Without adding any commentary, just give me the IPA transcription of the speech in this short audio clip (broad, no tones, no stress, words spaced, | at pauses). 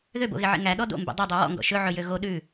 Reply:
ðøbo̰ɣeʕḛ ŋæ ɗɔdo̰mbḛ dˤodˤø wɔ̰ŋɡɔ̰ ʃɵʕɵjø ɣo ɗʉ